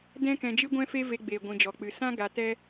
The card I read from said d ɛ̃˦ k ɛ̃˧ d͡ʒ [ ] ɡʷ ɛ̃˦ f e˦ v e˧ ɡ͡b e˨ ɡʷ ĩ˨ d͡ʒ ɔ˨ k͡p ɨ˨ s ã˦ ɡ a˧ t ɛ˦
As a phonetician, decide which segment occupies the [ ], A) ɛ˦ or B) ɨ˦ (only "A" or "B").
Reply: B